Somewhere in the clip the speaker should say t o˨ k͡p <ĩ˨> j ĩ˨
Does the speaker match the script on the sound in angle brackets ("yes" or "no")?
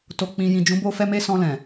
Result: yes